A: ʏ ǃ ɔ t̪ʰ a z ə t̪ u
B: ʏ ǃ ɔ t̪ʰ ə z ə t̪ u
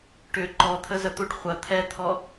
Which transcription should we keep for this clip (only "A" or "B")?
B